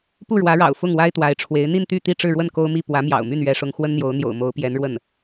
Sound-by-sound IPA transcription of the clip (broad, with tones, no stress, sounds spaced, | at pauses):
p u˥˩ ɻ w ä˧˥ ɻ ɑ̰˨˩ ʊ̯ f ʊ˥˩ ŋ w a˥ ɪ̯ t̪ w a˧˥ ɪ̯ ʈ͡ʂʰ w e˧˥ ɪ̯ n̪ i˥˧ n t̪ y˥˧ t̪ i˥˧ ʈ͡ʂ ɻ̩˥˧ ɻ w ə˥˩ n k o˥ ʊ̯ m i˥˩ p w ä˧˥ m j ɑ̰˨˩ ʊ̯ m y˥˩ n ɥ ɛ˥ ʂ ʊ˥ ŋ x w ə˥ n n̪ j o˧˥ ʊ̯ n̪ j o̰˨˩ ʊ̯ m o˧˥ ʊ̯ p j ɛ˧˥ n ɻ w ə˥˩ n